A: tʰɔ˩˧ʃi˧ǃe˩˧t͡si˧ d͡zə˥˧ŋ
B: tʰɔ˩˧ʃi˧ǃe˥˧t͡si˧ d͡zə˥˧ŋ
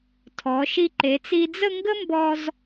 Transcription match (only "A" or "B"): A